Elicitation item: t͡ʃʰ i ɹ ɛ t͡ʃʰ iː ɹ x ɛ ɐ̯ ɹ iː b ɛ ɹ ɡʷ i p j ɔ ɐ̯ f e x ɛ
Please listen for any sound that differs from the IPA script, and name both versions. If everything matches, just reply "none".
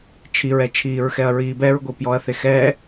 f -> θ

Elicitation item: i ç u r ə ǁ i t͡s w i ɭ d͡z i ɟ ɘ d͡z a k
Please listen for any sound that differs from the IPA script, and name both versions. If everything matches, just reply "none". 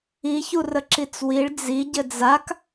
none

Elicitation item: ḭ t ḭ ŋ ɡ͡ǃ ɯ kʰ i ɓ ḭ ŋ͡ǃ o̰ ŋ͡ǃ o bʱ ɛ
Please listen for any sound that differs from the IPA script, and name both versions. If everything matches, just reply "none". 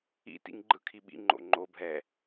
none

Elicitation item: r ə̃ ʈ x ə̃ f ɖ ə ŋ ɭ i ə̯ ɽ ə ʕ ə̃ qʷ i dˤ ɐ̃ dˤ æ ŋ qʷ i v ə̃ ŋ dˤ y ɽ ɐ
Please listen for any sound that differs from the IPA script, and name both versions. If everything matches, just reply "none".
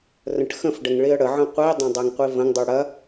none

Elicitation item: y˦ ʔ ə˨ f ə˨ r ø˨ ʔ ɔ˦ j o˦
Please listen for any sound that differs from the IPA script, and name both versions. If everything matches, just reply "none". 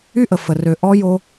none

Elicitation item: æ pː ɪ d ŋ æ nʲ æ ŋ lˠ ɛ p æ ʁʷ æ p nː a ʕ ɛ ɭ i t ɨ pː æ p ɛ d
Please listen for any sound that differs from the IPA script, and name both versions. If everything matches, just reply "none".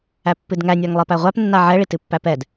ɪ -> ɨ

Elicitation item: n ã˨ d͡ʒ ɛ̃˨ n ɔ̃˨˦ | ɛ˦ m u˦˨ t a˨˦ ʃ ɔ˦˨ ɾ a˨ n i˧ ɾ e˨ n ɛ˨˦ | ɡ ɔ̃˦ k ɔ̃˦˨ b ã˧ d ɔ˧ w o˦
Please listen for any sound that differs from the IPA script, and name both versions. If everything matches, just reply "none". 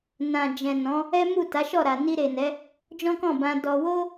ɡ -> d͡ʒ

